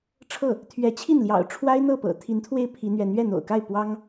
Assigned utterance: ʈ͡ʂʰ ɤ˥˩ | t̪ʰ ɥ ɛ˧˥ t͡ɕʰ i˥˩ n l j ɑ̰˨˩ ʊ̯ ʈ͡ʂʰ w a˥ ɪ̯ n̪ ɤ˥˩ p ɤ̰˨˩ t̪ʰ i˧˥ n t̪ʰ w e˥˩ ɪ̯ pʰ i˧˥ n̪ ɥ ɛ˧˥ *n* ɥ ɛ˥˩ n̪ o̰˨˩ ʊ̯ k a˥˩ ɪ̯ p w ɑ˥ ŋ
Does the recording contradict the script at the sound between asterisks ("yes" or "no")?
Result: no